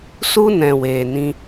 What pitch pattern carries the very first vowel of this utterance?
high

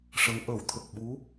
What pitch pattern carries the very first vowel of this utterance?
rising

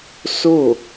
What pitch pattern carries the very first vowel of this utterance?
falling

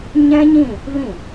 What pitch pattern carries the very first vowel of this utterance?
high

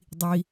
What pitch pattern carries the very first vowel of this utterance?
low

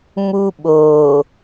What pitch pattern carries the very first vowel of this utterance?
high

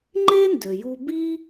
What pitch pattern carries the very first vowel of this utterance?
high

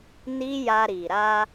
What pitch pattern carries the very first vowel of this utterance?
high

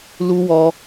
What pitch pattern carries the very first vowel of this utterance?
high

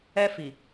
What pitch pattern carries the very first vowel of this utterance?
high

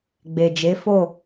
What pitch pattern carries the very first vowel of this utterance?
low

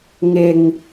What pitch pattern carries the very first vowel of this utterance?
low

